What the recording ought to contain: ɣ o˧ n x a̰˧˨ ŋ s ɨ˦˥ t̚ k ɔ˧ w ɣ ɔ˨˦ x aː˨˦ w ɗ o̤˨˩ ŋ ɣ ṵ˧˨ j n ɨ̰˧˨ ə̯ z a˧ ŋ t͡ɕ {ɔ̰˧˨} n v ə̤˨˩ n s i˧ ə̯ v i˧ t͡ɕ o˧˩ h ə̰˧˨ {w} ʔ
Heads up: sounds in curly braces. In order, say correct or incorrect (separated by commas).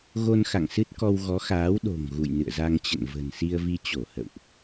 incorrect, correct